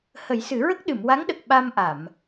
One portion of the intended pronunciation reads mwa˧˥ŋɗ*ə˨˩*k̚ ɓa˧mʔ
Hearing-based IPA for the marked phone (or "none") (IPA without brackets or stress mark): ə˨˩